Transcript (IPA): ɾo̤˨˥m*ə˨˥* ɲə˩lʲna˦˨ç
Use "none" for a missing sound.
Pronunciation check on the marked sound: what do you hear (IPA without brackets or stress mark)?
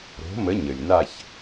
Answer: ə˨˥